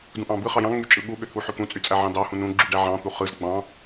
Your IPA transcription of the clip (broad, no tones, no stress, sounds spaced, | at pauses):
d ũ ʔ ɑ̃ b ɯ χ ɑ j ɑ̃ ŋ͡m y t͡ʃʼ ɯ ɠ u ɠ ø t̪ʰ u ħ ø k ũ t͡sʼ y t͡sʼ æ ʕ ɑ̃ d ɑ h ũ n ũ ɡ͡ǁ y ɖ æ ʕ ɑ̃ t̪ u χ ɯ z ɡ͡b ɑ̃